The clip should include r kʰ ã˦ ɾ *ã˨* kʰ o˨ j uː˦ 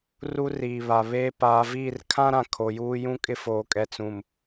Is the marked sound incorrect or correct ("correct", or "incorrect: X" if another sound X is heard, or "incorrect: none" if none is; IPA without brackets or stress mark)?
correct